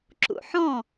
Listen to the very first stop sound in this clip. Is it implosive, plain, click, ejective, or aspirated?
click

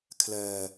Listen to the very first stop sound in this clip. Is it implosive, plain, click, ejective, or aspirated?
aspirated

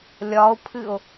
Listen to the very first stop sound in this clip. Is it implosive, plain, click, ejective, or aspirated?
aspirated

